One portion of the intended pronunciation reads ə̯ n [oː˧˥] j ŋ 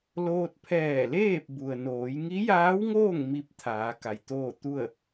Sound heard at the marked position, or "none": oː˩˧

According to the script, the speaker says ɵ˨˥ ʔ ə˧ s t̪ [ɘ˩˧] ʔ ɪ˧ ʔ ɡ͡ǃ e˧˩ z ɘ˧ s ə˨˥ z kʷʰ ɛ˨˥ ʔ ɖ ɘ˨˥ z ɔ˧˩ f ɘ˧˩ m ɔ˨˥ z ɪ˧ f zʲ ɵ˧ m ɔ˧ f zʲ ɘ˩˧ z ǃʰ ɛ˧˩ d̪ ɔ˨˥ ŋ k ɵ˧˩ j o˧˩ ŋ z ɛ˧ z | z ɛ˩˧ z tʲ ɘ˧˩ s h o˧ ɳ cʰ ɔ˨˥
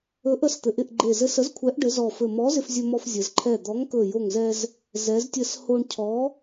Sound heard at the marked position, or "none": ɘ˩˧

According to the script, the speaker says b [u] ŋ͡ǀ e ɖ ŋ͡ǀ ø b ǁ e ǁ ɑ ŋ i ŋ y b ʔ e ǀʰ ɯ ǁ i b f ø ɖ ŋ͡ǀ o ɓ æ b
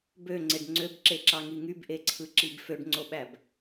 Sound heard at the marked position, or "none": ø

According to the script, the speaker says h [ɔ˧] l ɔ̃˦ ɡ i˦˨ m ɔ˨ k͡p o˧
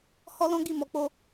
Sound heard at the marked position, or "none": ɔ˦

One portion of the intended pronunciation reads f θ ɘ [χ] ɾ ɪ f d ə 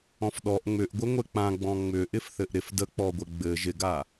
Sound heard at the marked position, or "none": ʔ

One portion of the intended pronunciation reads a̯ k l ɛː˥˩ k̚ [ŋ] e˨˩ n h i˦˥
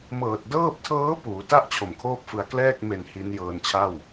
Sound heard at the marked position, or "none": m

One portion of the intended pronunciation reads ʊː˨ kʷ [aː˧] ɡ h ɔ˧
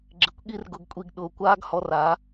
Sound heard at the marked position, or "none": aː˦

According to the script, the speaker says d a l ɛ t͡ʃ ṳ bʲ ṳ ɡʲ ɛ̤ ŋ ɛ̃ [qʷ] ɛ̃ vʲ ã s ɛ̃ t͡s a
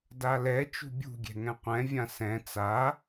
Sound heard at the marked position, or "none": qʷ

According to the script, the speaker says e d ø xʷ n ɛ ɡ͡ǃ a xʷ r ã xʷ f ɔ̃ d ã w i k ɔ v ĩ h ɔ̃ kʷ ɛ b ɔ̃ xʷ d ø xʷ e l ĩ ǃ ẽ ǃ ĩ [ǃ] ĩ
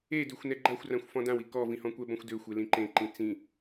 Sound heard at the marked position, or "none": t͡s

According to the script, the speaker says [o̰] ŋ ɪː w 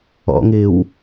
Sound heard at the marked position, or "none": ɔ̰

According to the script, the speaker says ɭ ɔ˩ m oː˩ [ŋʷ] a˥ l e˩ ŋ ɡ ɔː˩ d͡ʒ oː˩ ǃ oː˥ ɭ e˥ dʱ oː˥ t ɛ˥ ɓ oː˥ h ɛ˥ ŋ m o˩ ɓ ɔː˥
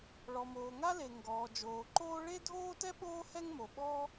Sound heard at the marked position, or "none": ŋ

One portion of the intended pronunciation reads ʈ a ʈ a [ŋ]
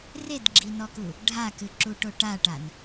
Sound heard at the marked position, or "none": n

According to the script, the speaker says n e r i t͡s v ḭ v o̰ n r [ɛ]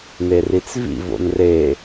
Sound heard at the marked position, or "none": e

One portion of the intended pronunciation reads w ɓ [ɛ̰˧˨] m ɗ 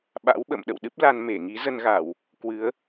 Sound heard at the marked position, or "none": ə̰˧˨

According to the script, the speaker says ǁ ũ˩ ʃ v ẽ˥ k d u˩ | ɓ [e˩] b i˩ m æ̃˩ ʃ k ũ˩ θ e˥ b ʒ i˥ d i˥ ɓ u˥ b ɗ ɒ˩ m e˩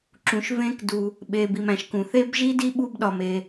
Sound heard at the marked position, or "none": e˩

